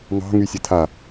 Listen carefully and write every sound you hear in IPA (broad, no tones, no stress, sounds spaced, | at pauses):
ŋ ɑ̤ ŋ y sʲ ɐ tʰ a